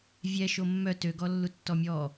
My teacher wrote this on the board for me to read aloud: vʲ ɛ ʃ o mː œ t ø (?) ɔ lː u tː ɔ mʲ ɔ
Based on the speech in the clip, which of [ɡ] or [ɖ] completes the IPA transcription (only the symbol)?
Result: ɡ